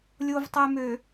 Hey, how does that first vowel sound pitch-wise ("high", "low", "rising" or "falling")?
low